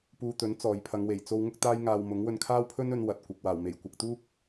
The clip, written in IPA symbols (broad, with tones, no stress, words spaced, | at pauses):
puː˧t̪ɵ˨˥n t͡sɔː˨jpʰɐ˨˧ŋwe˨˩j t͡so˧w ŋʊ˥k̚t̪aː˥jŋaː˧w mʊ˨˥ŋ wɵ˧nkʰaː˥wpʰɵ˥nɵ˨˧n wɐ˨t̚ kʷɪ˨k̚ waː˨˩wme˨˩j kʷɐ˧k̚t̪uː˥k̚